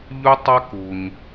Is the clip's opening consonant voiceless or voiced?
voiced